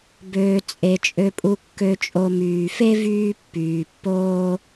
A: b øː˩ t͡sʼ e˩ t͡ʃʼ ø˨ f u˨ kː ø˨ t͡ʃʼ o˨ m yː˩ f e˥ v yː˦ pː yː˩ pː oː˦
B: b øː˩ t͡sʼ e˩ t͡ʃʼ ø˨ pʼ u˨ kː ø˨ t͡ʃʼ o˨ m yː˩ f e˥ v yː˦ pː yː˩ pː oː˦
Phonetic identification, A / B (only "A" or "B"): B